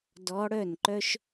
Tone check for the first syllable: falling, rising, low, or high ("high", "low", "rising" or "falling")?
rising